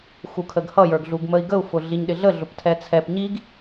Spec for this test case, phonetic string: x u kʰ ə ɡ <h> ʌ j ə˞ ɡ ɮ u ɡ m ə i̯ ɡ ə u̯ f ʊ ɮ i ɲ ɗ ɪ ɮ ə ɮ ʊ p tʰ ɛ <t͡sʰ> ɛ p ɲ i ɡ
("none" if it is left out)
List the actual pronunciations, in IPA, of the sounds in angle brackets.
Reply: h, t͡sʰ

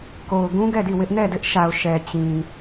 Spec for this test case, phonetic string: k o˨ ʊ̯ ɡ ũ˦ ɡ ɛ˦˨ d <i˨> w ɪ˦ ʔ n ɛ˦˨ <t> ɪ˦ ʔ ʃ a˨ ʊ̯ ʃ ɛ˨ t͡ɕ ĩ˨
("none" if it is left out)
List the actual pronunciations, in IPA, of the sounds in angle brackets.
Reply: i˦˨, d

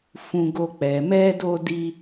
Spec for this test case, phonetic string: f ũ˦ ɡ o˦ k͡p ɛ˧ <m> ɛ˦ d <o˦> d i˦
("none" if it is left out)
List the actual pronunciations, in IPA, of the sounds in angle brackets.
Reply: m, o˦

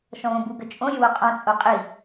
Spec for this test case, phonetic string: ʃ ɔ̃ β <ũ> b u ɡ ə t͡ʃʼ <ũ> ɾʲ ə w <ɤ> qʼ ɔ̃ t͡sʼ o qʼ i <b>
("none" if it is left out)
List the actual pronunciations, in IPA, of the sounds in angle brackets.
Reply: õ, õ, o, none

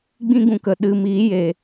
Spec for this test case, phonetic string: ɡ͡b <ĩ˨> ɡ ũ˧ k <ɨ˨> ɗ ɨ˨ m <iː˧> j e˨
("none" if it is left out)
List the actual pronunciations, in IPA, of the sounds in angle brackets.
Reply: ĩ˦, ə˨, iː˨˦

